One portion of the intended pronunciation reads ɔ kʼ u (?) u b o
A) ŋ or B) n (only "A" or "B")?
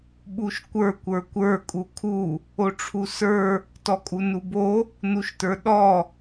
B